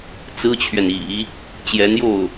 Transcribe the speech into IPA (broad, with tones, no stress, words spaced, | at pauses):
t͡sɹ̩˥t͡ɕʰɥɛ˨nḭ˨˩˦ | t͡ɕjɛ˧˥njo˥˩ʊ̯